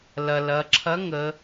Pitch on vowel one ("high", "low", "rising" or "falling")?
low